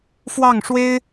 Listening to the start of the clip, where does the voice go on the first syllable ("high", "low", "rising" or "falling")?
falling